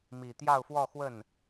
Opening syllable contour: low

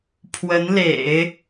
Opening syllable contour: rising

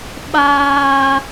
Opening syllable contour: high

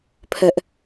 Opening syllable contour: high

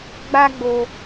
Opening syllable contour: high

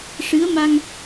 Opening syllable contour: rising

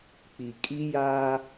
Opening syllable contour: low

